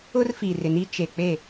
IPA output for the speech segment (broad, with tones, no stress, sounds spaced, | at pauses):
ʊ˦ r f i˨ r ɪ˨ n i˦ t͡ʃ e˨ k͡p e˦˨